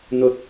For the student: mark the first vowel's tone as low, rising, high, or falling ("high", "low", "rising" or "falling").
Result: low